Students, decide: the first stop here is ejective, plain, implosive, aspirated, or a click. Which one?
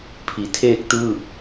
aspirated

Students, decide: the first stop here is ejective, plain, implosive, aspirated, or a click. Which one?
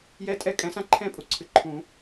ejective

